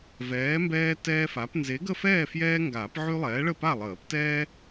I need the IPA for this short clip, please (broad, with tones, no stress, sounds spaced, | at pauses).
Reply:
v ɛː˨˥ m b ɛː˦ t ɛː˦ f a˨˥ p n z e˨˥ ɡ ə˥˨ f ɛː˥˨ f j ɛː˦ ŋ ɡ aː˨˩˦ p ʕ y˦ lˠ ɛː˨˥ ɭ ə˥˨ p a˥˨ lˠ əː˨˩˦ p t ɛː˦